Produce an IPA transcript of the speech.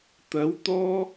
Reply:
t̪ ɐ˨˥ w t̪ ɔː˥

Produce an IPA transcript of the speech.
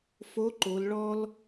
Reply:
f o˧˥ ǃ o˩˧ l ɭ ɔ˥ l

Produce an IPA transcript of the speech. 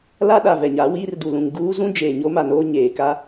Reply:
l a˦ ɗ a˨ v ɛ˨ ɲ a˨˦ w iː˦ r d u˨ l ũ˨ ŋ ɡ uː˦ z ũ˦ d͡ʒ eː˨ ɲ o˦ m a˨ n oː˦ ɲ eː˨ k a˦

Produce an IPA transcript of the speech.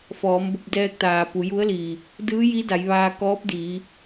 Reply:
f ɔː˩˧ m b o˧ p̚ d ɛː˧ k̚ t̪ aː˩ p u˩˧ j u˧˥ ə̯ l iː˩ | d ɯː˧˥ j i˧˥ d a˩˧ j ʋ aː˧ k ɔː˧˥ p̚ d iː˩˧

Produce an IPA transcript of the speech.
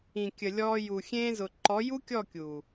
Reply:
ĩ˨ kʲ ə˨ lʲ ɔː˧ j u˨ xʲ ẽː˧ z ʊ˨ ǃ ɔ˨˦ j u˦ kʲ ɔ˦˨ kʲ uː˨

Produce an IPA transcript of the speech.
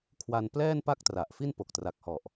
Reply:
kʰ w a˧ n p l ɛː˥˩ n p a˥˩ k̚ t r a˨˩ ʔ f i˥˩ n p o˨˩ k̚ t r a˨˩ k̚ h ɔ˨˩ ʔ

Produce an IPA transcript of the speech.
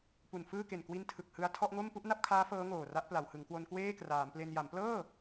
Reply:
p u˨˩ n f ɯː˥˩ k e˨˩ n k w i˦˥ n tʰ ɯ˨˩ k̚ h ɯ˧ a̯ tʰ ɔ˥˩ ʔ ŋ o˥˩ m p u˥˩ ʔ n a˥˩ p̚ kʰ aː˦˥ f ɤː˦˥ ŋ oː˨˩ r a˦˥ ʔ p l a˩˦ w h ɯ˩˦ ŋ k w o˧ n k w eː˥˩ k r aː˩˦ m p l e˧ n j a˩˦ m p l ɤː˥˩

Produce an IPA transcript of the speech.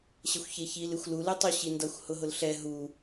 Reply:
ɕ ə xʷ ç e ç i l ɨ xʷ l u l ɨ tˤ u ɕ i n d ʌ xʷ h ʊ ɦ ʊ l ɬ ɛ ɦ u

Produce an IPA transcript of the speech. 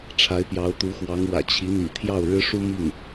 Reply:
ʈ͡ʂʰ a˧˥ ɪ̯ p j ɑ˧˥ ʊ̯ t̪ u˧˥ x w ɑ˧˥ ŋ w ä̰˨˩ t͡ɕʰ i˧˥ n̪ ḭ˨˩ t̪ʰ j ɑ˥˩ ʊ̯ ɻ ɻ̩˥ ʂ u˥ m i˥˩ ŋ

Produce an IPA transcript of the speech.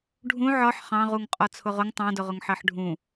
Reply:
ɖʱ ũ ʕ ɒ ħ χ ɑ̃ ʁ u ŋ qʼ ɒ t͡sʰ ʊ ʁ ʊ ŋ tˤ ɑ̃ d ʊ ʁ ʊ ŋ ħ ɜ ħ ɖʱ ũ

